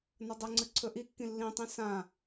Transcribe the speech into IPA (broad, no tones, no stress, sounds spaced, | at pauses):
n ɐ dˤ ɵ ŋ͡ǀ ɨ ǀʰ ɵ ʔ i kː ĩ lː ĩ tˤ ĩ s ã